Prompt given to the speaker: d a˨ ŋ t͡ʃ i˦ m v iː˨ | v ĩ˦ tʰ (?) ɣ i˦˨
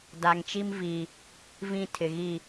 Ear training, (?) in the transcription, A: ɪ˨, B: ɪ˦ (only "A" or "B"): A